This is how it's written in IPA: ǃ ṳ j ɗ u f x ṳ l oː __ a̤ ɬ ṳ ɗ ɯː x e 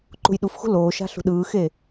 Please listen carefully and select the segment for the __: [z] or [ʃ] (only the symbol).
ʃ